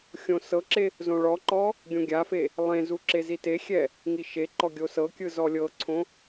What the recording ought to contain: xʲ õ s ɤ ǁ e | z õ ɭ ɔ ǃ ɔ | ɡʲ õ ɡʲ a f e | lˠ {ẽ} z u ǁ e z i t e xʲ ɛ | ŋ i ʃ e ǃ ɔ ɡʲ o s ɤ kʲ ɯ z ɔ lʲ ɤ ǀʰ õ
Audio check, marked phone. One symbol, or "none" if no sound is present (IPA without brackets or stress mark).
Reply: ẽ